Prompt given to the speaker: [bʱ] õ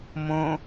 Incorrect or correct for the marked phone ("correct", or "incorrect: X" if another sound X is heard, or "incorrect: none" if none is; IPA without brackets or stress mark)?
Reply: incorrect: m